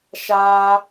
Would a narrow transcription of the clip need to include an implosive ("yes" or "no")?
no